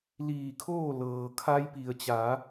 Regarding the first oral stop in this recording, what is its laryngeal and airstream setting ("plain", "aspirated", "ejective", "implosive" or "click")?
aspirated